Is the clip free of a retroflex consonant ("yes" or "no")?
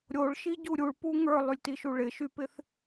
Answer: no